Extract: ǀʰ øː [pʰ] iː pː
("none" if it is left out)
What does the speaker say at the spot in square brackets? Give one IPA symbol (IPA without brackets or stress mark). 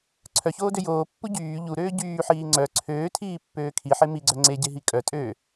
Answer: tʰ